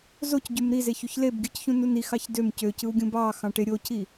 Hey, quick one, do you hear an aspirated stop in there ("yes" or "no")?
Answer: no